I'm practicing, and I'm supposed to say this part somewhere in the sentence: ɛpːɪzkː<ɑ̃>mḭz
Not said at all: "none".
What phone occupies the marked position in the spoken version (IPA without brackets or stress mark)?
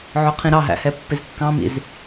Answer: ɑ̃